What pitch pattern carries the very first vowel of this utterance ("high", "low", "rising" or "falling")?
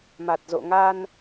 low